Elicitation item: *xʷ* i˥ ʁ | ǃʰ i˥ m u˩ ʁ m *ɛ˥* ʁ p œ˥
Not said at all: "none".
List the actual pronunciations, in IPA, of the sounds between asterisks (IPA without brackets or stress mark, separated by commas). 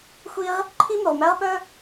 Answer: xʷ, æ˥